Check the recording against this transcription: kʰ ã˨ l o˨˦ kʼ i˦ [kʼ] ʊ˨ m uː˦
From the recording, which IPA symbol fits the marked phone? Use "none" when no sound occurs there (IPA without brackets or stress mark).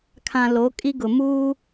ɡ